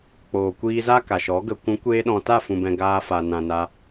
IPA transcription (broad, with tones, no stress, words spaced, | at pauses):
k͡poː˨kʷiː˧za˦ ka˨ʃɔ˨˦ ɡə˨kʷũ˨˦kʷeː˧ɗɔ̃˨ ta˦˨fũ˨bɛ̃˨ ɡaː˧fa˨nã˨ na˧